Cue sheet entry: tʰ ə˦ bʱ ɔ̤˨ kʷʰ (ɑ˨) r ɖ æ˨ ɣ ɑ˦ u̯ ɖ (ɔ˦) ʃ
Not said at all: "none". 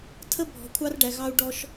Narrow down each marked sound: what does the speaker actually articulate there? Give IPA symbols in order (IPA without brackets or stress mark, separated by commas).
ɑ˦, ɔ˦